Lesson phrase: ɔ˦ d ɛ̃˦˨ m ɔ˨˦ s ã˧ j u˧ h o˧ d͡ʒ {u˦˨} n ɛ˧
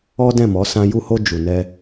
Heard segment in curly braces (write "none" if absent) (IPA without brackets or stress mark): u˨